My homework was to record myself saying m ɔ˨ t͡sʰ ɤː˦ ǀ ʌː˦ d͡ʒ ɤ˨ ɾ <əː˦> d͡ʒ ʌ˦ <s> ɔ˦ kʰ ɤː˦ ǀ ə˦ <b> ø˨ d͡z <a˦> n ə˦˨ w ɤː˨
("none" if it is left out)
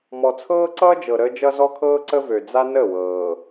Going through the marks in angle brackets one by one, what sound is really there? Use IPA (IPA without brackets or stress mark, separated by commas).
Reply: əː˦, z, v, a˦